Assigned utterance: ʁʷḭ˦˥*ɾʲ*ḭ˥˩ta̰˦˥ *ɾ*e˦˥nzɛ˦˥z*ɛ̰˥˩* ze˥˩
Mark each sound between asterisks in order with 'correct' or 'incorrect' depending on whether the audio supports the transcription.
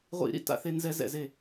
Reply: incorrect: ɾ, incorrect: θ, correct

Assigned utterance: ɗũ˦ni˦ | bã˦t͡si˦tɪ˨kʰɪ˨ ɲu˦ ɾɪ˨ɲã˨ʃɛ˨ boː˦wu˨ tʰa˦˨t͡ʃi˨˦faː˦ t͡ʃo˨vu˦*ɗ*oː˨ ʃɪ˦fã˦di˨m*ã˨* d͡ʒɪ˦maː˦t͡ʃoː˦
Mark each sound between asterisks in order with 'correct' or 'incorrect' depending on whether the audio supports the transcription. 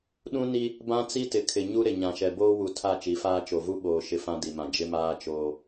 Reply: incorrect: ɓ, correct

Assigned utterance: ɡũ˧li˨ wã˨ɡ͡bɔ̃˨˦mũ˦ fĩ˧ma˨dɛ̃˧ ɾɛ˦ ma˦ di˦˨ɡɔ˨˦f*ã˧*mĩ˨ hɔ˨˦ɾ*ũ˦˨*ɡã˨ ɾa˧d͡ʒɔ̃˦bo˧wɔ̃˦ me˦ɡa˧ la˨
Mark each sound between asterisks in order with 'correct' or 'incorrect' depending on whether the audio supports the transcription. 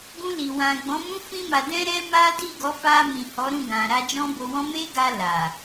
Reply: incorrect: a˧, correct

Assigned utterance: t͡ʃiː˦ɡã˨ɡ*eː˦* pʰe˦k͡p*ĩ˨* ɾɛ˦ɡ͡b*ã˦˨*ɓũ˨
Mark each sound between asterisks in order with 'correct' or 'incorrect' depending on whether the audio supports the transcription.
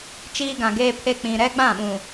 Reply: correct, correct, correct

